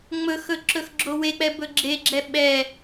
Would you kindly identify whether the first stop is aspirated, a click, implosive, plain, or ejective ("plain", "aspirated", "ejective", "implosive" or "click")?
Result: click